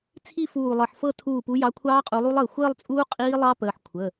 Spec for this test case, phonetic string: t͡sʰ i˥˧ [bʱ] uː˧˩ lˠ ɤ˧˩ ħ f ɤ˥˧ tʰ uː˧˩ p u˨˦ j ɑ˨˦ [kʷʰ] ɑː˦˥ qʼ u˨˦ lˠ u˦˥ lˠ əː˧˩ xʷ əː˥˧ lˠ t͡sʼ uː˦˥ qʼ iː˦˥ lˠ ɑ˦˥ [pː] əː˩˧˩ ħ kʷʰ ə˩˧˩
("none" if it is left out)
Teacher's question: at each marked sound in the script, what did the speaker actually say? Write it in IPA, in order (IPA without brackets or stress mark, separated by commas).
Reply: f, kʷʰ, p